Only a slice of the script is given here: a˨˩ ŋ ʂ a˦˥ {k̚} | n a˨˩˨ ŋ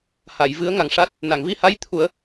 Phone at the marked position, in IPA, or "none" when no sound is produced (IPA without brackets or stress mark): t̚